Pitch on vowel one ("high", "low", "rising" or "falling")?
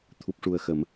low